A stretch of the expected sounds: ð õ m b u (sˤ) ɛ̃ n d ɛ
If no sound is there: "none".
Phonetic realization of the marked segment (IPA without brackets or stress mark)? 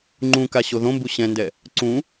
ɕ